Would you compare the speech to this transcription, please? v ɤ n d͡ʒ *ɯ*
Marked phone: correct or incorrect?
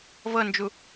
incorrect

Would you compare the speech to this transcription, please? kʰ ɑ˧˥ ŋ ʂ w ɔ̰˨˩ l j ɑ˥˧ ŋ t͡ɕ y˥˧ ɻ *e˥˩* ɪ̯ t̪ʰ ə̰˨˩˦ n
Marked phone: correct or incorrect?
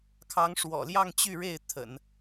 correct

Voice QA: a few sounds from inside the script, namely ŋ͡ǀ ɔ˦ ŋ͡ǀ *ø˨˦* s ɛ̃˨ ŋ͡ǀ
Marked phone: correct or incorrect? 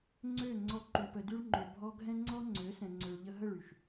correct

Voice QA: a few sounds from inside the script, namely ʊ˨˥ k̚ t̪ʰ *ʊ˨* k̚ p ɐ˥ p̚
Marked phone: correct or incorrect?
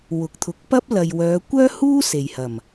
incorrect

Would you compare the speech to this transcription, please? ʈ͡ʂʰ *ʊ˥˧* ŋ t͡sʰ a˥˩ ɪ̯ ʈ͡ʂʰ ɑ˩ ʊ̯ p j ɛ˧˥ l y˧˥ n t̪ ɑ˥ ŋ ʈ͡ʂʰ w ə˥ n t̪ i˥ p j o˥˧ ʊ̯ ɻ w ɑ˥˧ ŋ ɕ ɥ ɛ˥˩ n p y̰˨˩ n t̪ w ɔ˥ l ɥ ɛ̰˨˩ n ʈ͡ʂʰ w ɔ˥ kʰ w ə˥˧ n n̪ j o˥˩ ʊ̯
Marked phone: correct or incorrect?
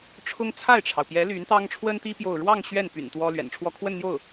incorrect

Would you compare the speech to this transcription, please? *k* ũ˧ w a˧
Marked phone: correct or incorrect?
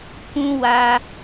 correct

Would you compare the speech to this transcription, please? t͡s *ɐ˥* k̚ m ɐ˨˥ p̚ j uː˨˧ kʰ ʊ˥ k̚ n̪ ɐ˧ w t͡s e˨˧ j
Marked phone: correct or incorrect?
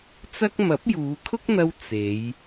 correct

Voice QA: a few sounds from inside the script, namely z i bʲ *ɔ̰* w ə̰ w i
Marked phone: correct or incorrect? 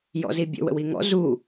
incorrect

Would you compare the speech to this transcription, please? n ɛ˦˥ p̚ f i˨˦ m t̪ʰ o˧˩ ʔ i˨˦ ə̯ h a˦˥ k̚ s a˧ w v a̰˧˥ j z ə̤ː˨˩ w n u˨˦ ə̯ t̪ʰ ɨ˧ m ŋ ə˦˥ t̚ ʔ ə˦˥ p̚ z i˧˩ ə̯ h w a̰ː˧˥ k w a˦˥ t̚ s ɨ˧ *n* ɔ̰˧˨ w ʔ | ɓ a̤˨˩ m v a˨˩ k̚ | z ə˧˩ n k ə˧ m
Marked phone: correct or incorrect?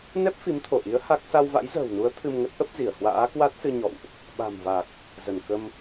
incorrect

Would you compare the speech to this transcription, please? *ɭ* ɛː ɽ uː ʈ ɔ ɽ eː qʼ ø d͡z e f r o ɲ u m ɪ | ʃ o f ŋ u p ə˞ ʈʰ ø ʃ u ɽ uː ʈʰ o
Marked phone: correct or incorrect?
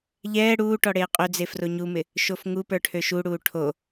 incorrect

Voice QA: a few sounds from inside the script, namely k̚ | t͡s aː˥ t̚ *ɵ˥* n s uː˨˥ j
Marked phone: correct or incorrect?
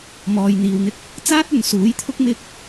incorrect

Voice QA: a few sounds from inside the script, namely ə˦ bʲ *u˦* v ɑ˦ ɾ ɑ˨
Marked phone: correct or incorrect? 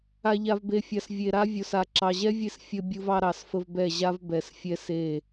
correct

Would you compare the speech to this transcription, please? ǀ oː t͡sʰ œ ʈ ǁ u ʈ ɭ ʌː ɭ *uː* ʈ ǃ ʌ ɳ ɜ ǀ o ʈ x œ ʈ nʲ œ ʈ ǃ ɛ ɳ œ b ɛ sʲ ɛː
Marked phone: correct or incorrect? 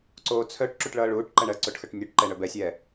correct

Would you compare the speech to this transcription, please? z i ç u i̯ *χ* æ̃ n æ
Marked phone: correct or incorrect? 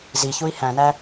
incorrect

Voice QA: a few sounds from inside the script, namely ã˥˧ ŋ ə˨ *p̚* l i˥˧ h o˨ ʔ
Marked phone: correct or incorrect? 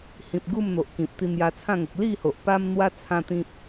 incorrect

